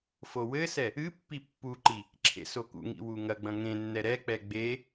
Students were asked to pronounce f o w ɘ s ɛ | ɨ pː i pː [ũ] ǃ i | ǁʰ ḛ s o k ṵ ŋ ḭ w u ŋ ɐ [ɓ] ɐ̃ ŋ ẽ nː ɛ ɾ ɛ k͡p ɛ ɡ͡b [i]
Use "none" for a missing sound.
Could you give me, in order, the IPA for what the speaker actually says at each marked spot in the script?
u, ɡ͡b, e

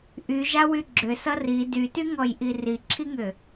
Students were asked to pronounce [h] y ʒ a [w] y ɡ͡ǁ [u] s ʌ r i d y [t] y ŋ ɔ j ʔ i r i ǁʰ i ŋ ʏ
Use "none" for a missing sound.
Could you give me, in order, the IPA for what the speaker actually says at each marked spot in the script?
ʔ, w, ʏ, t

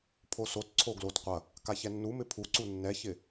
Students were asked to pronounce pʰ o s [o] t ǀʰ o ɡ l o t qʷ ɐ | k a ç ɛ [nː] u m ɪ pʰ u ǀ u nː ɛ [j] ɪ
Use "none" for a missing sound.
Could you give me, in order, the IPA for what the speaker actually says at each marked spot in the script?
o, nː, ç

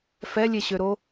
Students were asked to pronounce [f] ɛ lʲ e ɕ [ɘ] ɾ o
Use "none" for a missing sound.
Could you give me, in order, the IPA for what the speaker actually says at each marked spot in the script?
f, ø

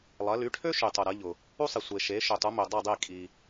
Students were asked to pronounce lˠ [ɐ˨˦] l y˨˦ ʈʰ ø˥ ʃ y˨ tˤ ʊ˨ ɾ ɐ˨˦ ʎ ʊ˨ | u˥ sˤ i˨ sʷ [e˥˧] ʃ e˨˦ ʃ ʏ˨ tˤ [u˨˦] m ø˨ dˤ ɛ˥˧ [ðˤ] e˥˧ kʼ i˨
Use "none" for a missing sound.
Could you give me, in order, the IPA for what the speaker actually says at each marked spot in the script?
ɐ˨˦, e˨, u˨˦, dˤ

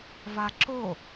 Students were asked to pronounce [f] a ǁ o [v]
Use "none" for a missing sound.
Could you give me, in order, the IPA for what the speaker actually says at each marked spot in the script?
v, none

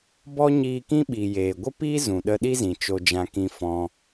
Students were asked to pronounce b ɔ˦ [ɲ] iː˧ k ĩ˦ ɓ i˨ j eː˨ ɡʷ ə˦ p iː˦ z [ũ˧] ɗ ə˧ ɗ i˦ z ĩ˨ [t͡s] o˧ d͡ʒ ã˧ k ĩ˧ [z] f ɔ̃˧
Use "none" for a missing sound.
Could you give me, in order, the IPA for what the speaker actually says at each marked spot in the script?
ɲ, ũ˨, t͡ʃ, none

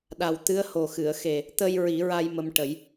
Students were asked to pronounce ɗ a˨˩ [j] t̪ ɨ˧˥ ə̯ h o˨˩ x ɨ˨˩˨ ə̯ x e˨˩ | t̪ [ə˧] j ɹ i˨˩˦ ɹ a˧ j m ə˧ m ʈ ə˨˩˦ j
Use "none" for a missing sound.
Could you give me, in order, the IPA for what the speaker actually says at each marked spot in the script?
w, ə˧

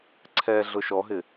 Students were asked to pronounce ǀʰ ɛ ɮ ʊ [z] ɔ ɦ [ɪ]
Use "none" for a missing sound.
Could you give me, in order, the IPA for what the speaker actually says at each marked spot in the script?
ʃ, ɪ

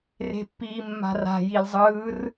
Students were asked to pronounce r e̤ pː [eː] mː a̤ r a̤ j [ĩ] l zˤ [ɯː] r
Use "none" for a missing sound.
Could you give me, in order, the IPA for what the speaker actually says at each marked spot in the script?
iː, i, ɯː

